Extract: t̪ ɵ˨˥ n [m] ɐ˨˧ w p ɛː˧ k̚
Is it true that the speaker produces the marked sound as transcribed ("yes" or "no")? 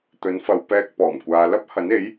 no